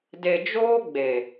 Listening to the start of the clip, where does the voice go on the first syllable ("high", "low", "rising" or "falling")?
low